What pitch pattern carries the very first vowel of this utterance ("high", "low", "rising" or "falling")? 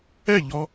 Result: falling